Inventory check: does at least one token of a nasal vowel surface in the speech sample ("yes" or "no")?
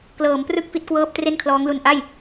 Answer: no